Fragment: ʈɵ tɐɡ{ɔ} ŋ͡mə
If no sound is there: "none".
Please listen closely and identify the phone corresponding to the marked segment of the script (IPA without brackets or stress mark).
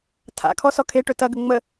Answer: ə